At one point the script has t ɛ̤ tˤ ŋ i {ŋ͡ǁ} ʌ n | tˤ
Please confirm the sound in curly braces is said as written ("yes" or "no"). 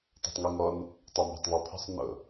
no